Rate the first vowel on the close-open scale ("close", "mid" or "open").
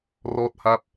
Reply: mid